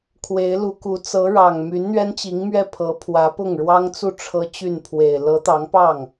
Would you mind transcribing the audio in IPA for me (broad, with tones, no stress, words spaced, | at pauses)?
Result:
kʰwe˧˥ɪ̯lu˧˥ku˧˥ t͡sɤ˧˥ ɻɑ˨˩ŋ my˧˥nn̪ɥɛ˥n t͡ɕi˧˥ŋmɥɛ˥˩pʰɤ˧˥pʰwä˧˥ pʊ˥˩ŋɻwɑ˥ŋt͡su˥˩ ʈ͡ʂʰɤ˥t͡ɕy˥˩n pʰwe˨˩ɪ̯ lɤ˧˥t̪ɑ˧˥ŋpɑ˥˩ŋ